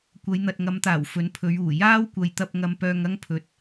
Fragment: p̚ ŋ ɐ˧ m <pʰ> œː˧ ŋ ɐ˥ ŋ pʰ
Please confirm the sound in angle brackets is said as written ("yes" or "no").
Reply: no